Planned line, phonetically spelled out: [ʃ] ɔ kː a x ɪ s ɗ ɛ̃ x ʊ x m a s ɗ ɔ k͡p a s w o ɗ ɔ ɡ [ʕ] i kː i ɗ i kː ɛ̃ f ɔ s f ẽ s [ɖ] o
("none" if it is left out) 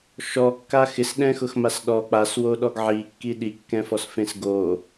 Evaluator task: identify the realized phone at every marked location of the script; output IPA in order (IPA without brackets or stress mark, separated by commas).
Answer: ʃ, ʕ, ɡ